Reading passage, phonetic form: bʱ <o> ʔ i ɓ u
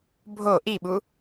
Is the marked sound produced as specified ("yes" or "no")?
yes